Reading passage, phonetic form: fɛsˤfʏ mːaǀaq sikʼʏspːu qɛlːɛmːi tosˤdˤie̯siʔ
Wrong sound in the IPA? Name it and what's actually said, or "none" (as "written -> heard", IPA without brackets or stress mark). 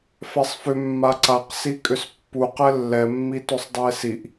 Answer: none